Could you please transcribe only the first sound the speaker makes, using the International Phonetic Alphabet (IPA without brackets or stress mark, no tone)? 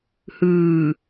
h